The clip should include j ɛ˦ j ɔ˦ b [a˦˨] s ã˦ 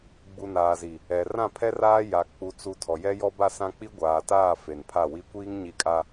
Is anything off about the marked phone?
no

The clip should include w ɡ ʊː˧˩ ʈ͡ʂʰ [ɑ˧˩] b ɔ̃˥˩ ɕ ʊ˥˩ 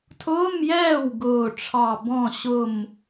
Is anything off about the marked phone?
no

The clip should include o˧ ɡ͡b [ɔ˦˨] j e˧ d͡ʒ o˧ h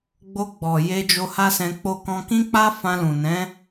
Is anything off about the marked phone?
yes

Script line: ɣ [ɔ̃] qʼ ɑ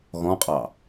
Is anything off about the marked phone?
no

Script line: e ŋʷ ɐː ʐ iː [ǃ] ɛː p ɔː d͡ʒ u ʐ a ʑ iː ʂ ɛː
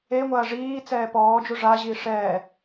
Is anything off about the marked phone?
yes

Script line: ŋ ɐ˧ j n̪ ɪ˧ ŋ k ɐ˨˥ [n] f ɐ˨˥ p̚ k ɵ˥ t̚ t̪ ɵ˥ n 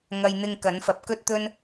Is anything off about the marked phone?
no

